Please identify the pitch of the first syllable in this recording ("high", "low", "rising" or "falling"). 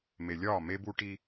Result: low